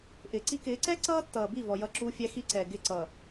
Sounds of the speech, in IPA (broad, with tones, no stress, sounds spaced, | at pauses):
ʔ ɪː˨ ǀ i˦ k ɪː˨˦ ǀ ɛ˦ ǀ ʌː˦ tː ʌː˨ b i˦˨ v ɔ˨ j ʌ˦˨ ǁ uː˦ fʲ æ˦ x i˦ ǀ ɛ˨ ɡ ɪ˦˨ ǀ ʌː˨